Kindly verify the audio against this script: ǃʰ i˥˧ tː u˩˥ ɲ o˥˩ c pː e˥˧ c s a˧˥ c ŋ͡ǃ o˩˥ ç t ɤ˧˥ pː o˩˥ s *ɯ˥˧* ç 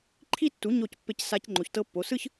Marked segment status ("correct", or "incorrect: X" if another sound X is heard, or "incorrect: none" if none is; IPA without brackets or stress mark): correct